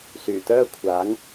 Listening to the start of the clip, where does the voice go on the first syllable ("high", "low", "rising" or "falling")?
low